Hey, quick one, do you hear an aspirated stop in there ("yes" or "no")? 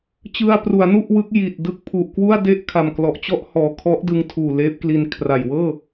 yes